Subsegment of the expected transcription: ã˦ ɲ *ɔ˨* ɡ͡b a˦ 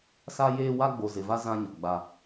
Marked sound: correct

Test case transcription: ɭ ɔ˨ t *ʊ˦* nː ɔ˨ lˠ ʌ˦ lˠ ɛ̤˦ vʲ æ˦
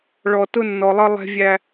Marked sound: correct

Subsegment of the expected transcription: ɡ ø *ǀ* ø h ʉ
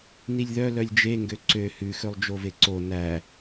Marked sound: correct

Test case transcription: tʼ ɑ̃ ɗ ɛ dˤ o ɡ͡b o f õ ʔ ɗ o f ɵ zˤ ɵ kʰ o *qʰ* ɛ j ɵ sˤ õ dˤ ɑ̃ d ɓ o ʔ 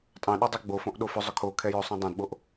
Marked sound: incorrect: kʰ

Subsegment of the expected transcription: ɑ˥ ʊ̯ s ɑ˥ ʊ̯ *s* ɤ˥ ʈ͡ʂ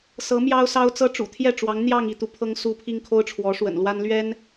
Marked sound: incorrect: t͡s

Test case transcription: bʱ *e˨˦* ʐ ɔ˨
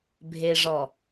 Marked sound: incorrect: e˨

